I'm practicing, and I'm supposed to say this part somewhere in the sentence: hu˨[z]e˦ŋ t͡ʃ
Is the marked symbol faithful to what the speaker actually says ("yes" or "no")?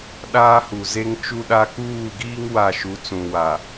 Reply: yes